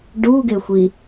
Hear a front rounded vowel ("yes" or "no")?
no